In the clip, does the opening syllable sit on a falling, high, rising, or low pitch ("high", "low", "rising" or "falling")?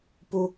high